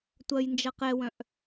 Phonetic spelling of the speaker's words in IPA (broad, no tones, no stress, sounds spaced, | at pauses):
tʷ ɐ j n d͡ʒ ɐ q ɛ w œ̃ ʔ